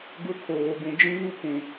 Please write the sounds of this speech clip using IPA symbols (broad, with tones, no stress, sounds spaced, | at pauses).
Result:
ɡ ʊ˦ kʰ oː˨ ɡ ũ˨ d͡ʒ ĩ˦ β u˦ kʷ ũ˨